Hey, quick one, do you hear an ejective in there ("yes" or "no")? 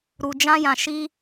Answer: no